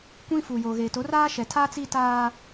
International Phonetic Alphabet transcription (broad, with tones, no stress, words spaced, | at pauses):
kʷĩ˦fu˨jo˨ ɣeː˨ to˨˦raː˦ʃɛ˨tʰaː˦ t͡si˦taː˦